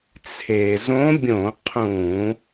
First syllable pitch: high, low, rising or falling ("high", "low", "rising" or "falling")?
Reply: low